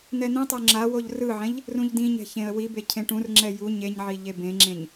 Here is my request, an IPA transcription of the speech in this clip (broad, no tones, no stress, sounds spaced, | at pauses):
n̪ ɛ n̪ ẽ tˤ o ŋ͡ǁ a w o ʎ r ɯ ʕ ɛ̃ ʎ | r ũ ʎ d ĩ ɲ ɛ̤ ç ẽ ə̯ w i b e cʰ ẽ ʈ ũ r ŋ͡ǁ ɛ j u ɲ e ɲ ʕ i ʎ e b ẽ ŋ͡ǁ ẽ ɲ